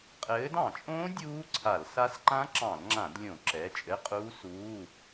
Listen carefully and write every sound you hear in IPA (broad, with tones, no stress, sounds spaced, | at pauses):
qʼ ɘː˨˦ d ɑ̃˧˩˧ t͡ʃʼ õː˦˥ dʲ uː˦˥ ǀʰ a˧˩˧ l s a˦˥ s ǃ ã˦˥ ǁ ɑ̃˧˩˧ l ŋ͡ǁ ã˧˩˧ d lʲ õ˧˩˧ ǁ ɛ˩˧˩ t͡ʃʼ ɘ˧˥˧ qʼ uː˦˥ s uː˧˥˧